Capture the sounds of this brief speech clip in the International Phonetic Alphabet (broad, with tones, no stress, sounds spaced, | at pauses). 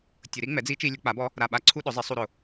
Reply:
tʲ ʊ˨˩˦ ɾ i˩˥ ŋ͡m ɛ˩˥ d͡z i˧˥ t͡ʃ i˧ lʲ ʊ˨˩˦ k͡p a˩˥ b ɔ˧˥ | ɾ a˨˩ ɓ a˧ ǀʰ u˧ ɗ ʊ˩˥ zˤ i˩˥ sˤ u˧ ɾ ʊ˨˩